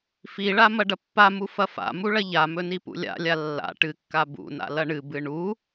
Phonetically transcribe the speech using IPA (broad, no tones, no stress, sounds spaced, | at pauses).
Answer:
f i ɭ a m ɐ ɖ ɐ pː a m u f ɐ f a̰ m u ɭ ɐ ʎ a m ɵ n i p ṵ lʲ a̰ lʲ a lː a̰ ʈ ɨ kː a b ṵ n a̰ l ɐ ɳ ɨ b ɨ ɳ u